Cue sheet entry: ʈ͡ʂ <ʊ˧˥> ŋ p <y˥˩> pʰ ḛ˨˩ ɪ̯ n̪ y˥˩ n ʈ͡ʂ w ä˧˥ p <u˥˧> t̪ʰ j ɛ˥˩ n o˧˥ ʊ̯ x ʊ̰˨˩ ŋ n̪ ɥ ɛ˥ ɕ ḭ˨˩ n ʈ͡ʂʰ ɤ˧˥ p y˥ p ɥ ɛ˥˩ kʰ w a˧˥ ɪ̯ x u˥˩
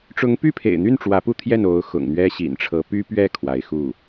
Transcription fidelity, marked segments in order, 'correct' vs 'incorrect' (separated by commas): correct, correct, correct